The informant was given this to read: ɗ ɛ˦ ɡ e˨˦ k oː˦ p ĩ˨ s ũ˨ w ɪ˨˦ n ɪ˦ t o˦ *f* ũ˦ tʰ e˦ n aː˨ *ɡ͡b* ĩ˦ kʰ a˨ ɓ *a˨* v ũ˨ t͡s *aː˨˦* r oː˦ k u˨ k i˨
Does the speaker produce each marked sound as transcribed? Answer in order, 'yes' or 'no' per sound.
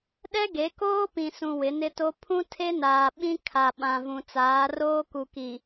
no, no, no, yes

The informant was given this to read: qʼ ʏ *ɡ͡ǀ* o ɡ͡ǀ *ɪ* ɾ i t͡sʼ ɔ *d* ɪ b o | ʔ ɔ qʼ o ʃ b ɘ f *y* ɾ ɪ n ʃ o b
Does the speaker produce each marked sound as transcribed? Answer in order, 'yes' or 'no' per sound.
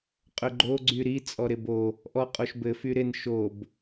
no, no, no, yes

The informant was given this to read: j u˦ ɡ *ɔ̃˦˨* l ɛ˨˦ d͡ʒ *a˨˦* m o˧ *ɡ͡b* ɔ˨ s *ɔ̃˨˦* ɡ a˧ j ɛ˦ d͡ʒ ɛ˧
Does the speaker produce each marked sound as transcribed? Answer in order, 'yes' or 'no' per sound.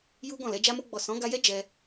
yes, no, yes, yes

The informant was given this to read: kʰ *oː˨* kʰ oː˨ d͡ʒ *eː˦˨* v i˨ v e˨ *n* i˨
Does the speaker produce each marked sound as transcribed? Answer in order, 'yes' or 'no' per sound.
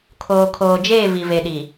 yes, yes, no

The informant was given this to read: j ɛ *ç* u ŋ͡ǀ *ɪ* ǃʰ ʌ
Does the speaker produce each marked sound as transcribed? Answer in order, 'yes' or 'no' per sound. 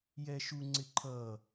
no, yes

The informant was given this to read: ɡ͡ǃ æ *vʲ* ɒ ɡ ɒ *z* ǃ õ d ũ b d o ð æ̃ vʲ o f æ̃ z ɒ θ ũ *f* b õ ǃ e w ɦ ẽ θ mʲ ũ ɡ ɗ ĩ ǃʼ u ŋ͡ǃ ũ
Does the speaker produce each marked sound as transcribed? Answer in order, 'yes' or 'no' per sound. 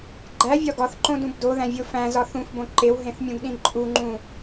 yes, no, yes

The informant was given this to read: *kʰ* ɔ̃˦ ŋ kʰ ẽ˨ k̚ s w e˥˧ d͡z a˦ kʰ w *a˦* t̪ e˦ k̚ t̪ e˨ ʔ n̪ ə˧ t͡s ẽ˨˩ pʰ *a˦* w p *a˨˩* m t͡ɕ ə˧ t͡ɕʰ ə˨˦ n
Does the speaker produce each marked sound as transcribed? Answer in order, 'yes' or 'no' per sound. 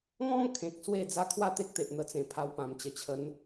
no, no, no, no

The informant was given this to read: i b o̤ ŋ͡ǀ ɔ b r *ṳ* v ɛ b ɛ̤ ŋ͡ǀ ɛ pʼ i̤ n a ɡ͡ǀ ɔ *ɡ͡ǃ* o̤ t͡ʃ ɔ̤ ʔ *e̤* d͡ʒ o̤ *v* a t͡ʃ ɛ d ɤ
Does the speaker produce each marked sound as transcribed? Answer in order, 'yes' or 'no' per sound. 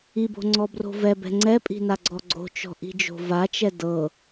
no, no, no, yes

